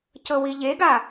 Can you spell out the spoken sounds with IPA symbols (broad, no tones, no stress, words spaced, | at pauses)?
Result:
cɤwiʎeɡa